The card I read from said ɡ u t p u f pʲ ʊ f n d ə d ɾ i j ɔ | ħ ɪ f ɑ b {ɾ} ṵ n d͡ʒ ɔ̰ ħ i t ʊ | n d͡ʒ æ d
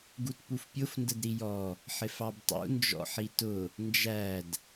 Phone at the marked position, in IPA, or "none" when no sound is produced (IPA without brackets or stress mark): tˤ